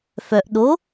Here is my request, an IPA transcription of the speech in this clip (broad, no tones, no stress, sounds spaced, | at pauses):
f œ ʔ ɗ o